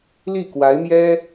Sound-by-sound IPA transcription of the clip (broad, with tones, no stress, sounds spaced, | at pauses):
l i˥˩ k w a˧˥ ɪ̯ m j ɛ˥